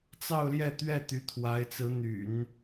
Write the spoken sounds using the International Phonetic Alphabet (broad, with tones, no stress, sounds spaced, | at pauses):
t͡s ɑ˥˧ ʊ̯ l j ɛ˥˧ t̪ ɥ ɛ˥˩ t̪ y˧˥ t̪ʰ w a˧˥ ɪ̯ t͡s ɹ̩˧˥ n̪ y̰˨˩˦ n